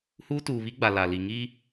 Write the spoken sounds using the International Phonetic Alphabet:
huː˦tuː˨βi˦ɡ͡ba˨ la˨li˨ ŋiː˦

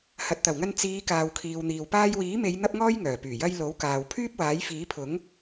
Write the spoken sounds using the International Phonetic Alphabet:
hɐ˨t̚t̪ɐ˨˩wŋɐ˧n t͡siː˨˧ kaː˨wkʰiː˨wn̪iː˨w paː˧jwiː˨˥me˨˧j n̪ɐ˥p̚ŋɔː˥jŋœː˨˩ pyː˨˩jɐ˧j lo˨˥wkaː˨wpʰyː˥p̚waː˨˥j fiː˨˥pʰʊ˨˥ŋ

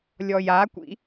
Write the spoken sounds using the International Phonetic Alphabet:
lʲɔjakʷḭ

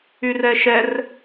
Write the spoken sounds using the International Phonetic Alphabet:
yrɛʃɛr

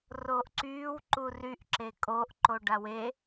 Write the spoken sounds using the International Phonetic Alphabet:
roːʔǀyːw ǃuryʔ ǁekʼoʔ ǃoɖawe

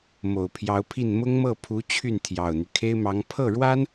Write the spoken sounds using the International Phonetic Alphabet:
mo˨˩ʊ̯pʰjɑ˧˥ʊ̯pʰi˥˩n mʊ˥ŋmɤ˥˩pʰu˧˥ t͡ɕʰy˥˩nt̪ʰjɑ˨˩ʊ̯n̪y˦ kʰe˥ɪ̯mɑ˧˥ŋ pʰɤ˥˩ɻwa˥n

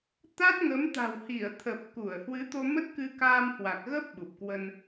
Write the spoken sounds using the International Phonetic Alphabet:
t̪a˦˥t̚ŋə˨˦m t̪a̤˨˩whi˧˩ə̯t̪ʰə˨˩p̚ ku˧˩ə̯hwɨ˨˦t̪o˧ mə˦˥t̚kɨ˧ kaː˧mhwa˨˩k̚ɣə˦˥p̚ ɓu˨˩p̚kwə˧n

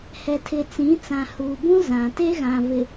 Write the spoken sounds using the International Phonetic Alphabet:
hɛ˨tʰɪ˨ t͡sĩ˨˦t͡sã˨huː˨bũ˦ zã˨ te˦ɣã˨vɪ˨

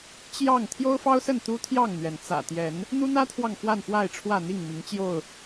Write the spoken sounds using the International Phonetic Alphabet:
t͡ɕjɑ˥˨ŋ t̪ʰjo˦ʊ̯fɑ˦ʊ̯sə˥˨n t̪u˦t̪ʰjɑ˥˨ŋn̪ɥɛ˩n t͡sä̰˨˩t̪jɛ˨˦n | n̪u˦n̪ä˦t̪ʰwɑ˨ŋ fwa˥˨nfwa˥˨ɪ̯ʈ͡ʂʰwä˥˨ n̪i˥˨ŋmi˨˦ŋ t͡ɕjo˥˨ʊ̯

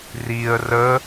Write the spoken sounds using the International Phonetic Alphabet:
riə̯ rə

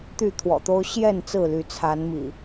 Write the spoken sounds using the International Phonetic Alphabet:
t̪y˥˨t̪ʰwɔ̰˨˩t̪o˦ʊ̯ ɕjɛ˥˨n t͡sɹ̩˥˨ly˨˦ t͡sʰa˨˦nmḭ˨˩

